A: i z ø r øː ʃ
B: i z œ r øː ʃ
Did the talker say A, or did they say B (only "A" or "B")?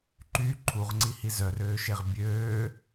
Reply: B